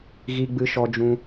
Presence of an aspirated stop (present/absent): absent